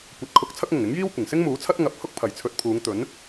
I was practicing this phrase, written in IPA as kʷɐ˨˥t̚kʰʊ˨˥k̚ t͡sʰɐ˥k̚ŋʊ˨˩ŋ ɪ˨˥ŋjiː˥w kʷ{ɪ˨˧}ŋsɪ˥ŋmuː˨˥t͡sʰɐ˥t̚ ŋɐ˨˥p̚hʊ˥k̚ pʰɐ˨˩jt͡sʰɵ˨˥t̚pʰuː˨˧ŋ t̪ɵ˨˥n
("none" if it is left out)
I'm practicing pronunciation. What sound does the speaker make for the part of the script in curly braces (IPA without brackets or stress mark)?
ɪ˨˩